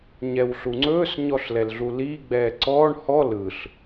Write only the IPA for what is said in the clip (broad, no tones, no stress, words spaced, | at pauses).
ɲɛwɬuŋ͡ǀɵːs ɲɔɬlɛlɮuliː ɡ͡bɛːǀɔːɳ hɔ lɯɬ